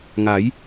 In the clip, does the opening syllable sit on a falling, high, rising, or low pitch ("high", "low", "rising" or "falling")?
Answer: rising